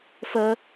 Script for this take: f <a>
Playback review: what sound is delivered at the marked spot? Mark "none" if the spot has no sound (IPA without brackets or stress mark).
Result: ə